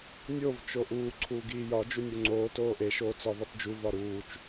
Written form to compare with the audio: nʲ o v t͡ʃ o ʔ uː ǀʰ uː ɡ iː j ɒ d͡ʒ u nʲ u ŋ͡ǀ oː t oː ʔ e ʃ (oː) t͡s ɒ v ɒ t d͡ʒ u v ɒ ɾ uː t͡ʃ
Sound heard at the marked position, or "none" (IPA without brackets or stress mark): oː